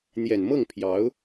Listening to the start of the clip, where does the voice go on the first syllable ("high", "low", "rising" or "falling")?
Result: low